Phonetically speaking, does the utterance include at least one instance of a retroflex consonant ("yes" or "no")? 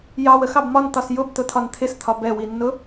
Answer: no